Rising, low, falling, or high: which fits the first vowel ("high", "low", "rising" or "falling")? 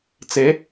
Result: rising